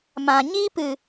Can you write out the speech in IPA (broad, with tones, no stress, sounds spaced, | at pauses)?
m ã˨ ɲ iː˦ p ɨ˨